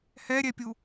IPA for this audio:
h ɛ ɾʲ ɛ pʲ u

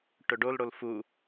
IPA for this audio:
ʈ ɵ ɖ o l ɽ o l f u

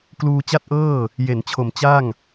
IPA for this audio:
k l uː˧ t͡ɕ a˥˩ t̚ ʔ ɤː˥˩ | j e˩˦ n t͡ɕʰ o˨˩ m t͡ɕ a˥˩ ŋ

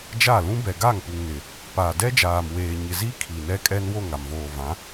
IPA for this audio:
d͡ʒ a˦˨ l ũ˦ b ɛ˨ ɡ a˦˨ ŋ p u˨ ŋ n ɪ˨ | p a˨ d ɛ˦ d͡ʒ aː˨ m w eː˨ ɲ ɪ˨ z i˦ kʰ i˨ n ɛ˦ kʼ ɛ˦ n w o˦˨ ŋ a˨ m v oː˨ v ã˨˦

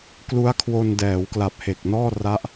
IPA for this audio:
k l u˦˥ a̯ kʰ w o˧ n d ɛː˩˦ w k l a˨˩ p̚ h e˨˩ k̚ n ɔː˥˩ r a˦˥ ʔ

